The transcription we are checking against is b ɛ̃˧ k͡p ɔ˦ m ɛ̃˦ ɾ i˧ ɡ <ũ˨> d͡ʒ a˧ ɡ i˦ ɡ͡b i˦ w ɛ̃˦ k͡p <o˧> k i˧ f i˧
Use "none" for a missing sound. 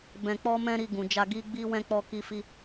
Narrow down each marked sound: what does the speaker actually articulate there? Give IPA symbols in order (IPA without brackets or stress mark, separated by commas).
ũ˨, ɔ˧